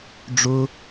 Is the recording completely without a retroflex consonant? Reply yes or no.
no